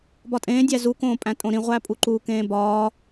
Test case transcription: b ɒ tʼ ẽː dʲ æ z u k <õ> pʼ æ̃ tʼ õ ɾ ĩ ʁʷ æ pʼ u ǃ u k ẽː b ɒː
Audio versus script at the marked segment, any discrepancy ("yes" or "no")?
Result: yes